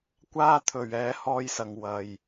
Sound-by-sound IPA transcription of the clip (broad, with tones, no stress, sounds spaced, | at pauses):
kʷ aː˥ t̪ʰ ɵ˨˩ ɥ ɛː˨˥ h ɔː˧ j s ɐ˨ ŋ w ɐ˨˩ j